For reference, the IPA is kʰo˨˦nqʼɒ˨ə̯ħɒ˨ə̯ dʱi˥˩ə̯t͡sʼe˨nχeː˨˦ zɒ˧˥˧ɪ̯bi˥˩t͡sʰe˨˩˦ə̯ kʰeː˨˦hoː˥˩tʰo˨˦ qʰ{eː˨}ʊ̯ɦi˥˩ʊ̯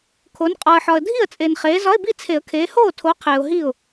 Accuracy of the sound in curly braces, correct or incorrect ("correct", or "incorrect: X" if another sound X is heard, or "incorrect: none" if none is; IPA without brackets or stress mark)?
correct